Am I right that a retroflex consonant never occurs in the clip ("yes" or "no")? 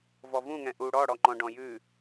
no